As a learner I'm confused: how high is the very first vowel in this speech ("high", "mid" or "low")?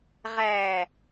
low